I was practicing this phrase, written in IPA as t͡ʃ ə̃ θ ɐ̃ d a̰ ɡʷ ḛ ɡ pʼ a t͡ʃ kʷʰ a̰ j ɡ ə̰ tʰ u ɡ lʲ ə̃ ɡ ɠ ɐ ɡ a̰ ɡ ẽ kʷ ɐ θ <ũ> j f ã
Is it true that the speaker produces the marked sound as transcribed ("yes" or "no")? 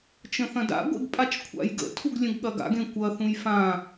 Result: yes